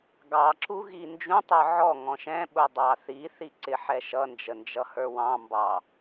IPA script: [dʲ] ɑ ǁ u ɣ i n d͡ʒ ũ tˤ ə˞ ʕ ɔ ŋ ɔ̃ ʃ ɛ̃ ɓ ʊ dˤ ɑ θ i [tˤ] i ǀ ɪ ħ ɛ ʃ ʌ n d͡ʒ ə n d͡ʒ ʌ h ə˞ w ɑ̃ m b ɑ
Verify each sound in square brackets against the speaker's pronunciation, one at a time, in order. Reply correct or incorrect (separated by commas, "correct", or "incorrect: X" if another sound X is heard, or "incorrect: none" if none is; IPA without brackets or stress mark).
incorrect: ɡ, incorrect: θ